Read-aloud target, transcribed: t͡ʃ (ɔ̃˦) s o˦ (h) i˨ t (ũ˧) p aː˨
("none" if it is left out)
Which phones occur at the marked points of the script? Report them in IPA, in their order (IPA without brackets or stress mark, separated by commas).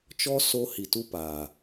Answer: ɔ˦, h, u˧